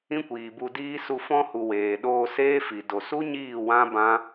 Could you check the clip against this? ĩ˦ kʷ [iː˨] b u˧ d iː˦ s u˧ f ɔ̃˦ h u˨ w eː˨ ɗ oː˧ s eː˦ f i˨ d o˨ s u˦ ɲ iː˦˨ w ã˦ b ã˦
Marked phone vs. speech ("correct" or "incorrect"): correct